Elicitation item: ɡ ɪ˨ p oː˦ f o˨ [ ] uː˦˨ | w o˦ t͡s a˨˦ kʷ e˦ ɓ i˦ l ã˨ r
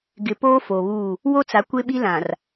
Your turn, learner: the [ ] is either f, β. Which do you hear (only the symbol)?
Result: β